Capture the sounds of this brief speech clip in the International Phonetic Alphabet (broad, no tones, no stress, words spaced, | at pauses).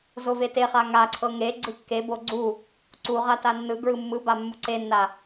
zoveteχa ŋaǀʰɤ ŋe ɡ͡ǀɯkːebo ɡ͡ǀu | ǀuʁa tanːɯɡɹɯ mːɯba mːuǀenːa